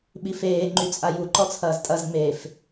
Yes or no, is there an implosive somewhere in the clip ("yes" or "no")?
yes